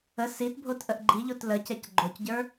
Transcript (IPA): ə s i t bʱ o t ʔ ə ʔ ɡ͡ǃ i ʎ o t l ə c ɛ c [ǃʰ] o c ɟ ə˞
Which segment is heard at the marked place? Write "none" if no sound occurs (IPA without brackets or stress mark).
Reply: ɡ͡ǃ